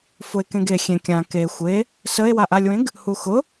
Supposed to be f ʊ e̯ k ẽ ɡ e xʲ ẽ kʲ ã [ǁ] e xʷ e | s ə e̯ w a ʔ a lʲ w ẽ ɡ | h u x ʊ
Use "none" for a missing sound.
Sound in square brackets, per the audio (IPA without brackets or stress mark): k